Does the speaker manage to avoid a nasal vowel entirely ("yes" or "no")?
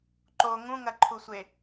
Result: no